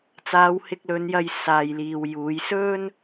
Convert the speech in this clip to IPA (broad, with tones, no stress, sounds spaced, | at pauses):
t͡s aː˨˧ w h ɪ˧ k̚ l ɵ˨˧ n j ɐ˧ j s aː˨ j l iː˨ w j uː˨˧ j s ɵ˥ n